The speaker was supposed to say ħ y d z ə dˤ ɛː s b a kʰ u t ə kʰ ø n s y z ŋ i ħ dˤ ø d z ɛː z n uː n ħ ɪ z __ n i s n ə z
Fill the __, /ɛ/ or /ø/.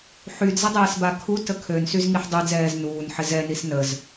ɛ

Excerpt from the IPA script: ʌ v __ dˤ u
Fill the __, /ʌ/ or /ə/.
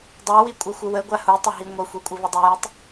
ʌ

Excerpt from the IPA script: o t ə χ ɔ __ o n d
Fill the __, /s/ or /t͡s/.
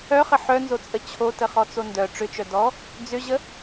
t͡s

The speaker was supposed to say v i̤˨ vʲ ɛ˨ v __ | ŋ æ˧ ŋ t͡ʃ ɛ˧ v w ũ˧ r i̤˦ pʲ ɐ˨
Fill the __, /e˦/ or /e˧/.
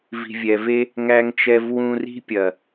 e˦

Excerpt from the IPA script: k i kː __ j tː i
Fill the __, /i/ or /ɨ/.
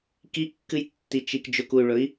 ɨ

